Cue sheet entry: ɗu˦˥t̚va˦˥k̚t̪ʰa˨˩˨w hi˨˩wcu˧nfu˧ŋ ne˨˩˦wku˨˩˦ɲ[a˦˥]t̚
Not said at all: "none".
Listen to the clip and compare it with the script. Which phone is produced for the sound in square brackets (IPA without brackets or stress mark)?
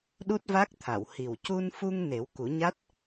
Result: a˦˥